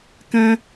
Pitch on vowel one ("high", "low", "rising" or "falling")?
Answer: high